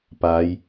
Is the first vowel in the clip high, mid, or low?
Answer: low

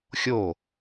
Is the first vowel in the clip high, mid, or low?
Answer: mid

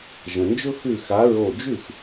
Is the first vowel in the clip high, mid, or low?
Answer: mid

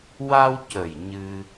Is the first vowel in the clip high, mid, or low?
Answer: low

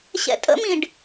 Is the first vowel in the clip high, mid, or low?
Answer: mid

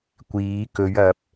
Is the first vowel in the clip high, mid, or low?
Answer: high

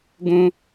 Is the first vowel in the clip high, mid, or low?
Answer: high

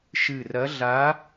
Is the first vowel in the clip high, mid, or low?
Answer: high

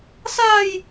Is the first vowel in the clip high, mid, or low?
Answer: low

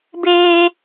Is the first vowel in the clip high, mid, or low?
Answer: mid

